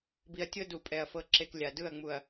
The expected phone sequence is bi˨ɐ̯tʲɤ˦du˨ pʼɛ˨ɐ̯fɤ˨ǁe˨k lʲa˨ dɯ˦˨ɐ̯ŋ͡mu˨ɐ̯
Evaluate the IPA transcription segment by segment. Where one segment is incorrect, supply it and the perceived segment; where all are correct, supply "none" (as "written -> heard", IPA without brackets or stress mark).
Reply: none